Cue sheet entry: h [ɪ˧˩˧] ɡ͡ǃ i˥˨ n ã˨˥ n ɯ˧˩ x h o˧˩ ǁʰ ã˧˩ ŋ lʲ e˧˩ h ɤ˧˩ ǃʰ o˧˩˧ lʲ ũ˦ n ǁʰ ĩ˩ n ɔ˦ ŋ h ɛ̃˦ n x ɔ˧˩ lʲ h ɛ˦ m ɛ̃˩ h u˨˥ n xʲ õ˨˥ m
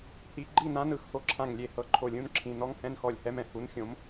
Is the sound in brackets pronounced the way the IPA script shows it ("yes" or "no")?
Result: no